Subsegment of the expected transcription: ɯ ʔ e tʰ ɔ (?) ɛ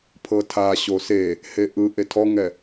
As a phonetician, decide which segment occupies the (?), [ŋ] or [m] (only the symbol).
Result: ŋ